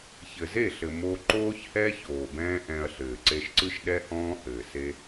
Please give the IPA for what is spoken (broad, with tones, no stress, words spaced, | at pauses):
çɘ˨ze˦˨ɬɘ˨ mo˧ǃoː˦çhɛ˦ çoː˨bɛ̃ː˦ʔɛ̃˧ɐ̯ɬɘː˨ ǀe˧ʃǀɯ˦ʃ ɗɛ˦hɔ̃ː˦ hɘː˨se˦